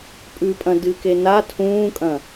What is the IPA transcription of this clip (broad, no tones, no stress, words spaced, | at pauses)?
pʼʉpʼɐ̃ dɨke na tʰũːkʼɐ̃